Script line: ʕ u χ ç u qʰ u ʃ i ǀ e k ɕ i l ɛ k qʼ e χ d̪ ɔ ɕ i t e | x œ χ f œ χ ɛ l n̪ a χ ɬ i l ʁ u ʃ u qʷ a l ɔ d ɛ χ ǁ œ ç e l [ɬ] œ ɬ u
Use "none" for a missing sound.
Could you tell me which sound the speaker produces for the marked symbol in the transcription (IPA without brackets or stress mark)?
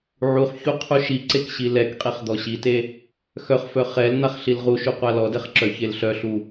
ɬ